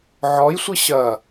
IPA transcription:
ʕ ɔ j sʷ ɨ ɕ ɐ

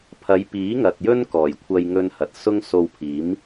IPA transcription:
pʰ ɐ˨˧ j p iː˨˥ ŋ ɐ˨ t̚ j ɵ˥ n k ɔː˨˩ j kʷʰ ɐ˧ j ŋ ɵ˧ n h ɐ˨ t̚ s ʊ˥ ŋ s o˧ w pʰ iː˨˥ m

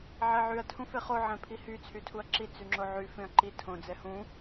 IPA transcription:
ʕ ɛ ʕ y ɐ̯ tʰ ũ f e χ o ʕ ɛ̃ pʰ i h y t͡sʰ y tʰ u ɐ̯ ǁ i t͡s y ŋ͡ǁ o ʕ y f ẽ ɐ̯ ǃ i tʰ õ d͡z ɛ h ũ

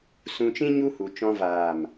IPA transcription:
s ũ˧ t͡ʃ ĩ˦ ɲ u˦ h u˨ t͡ʃ ɔ̃˧ v aː˨ m

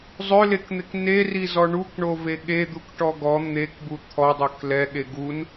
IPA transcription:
zˤ ø l e k n̪ e k n e r i z ɔ ɳ u k ɳ o v e ɠ e d̪ u k ʈ ɔ ɡ ɔ n̪ e k b u t̪ʰ ɔ dˤ ø k l ɛ ɠ e ɡ u n

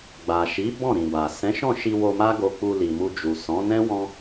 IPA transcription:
ɡ͡b a˨ ʃ i˨˦ b ɔ̃˦˨ ɾ ĩ˨ b a˨ s ɛ̃˨˦ ʃ ɔ̃˦˨ ʃ i˧ w o˧ m a˦ ɡ o˧ k͡p u˧ l i˨ m u˧ d͡ʒ u˨ s ɔ̃˨˦ n ɛ̃˦ w ɔ̃˦

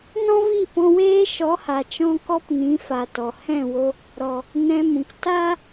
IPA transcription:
n ɔ̃˦ v i˦˨ p ɔ̃˧ w eː˦ ʃ ɔ˨˦ h a˨ t͡ʃ ɔ̃˧ k ɔ˧ p n ĩ˨˦ f a˨ t ɔ˨ h ɛ̃˦˨ w o˦ | ɾ ɔ˨ | n ɛ̃˧ m ũ˨ k t a˦

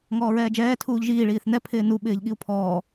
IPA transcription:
ŋ ɔː ɹ ɛː d͡ʒ ɛː tʰ uː ʎ ʒ iː ɭ iː θ n ɛ pʰ ɪː n u ɓ ɪː ʎ ɠ i u̯ pʰ ɔː

